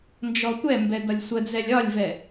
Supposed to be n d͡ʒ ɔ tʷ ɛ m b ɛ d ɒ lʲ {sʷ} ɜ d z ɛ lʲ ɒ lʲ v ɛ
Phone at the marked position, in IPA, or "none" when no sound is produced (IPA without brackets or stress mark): sʷ